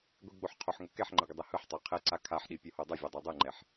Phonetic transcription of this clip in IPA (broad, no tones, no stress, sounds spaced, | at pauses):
ɡʷ i ɡ͡b o ħ qʰ o ħ ŋ o k ɛ ħ ŋ͡ǃ ə ɡʷ ə dˤ ɛ h ɯ ħ tˤ a qʰ ɛ ǀ a kʰ a ħ ɗ i pʲ o h o dˤ ɛ vʲ a dˤ o dˤ ɯ ŋ͡ǃ ɛ ħ